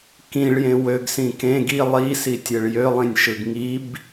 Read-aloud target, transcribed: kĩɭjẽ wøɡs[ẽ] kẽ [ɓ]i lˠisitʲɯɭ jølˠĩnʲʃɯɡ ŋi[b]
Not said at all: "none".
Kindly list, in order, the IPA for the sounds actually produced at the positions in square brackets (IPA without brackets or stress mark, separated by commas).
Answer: ĩ, ɡ, b